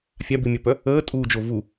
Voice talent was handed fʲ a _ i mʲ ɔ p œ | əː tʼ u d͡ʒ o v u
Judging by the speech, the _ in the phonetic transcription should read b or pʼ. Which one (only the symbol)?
b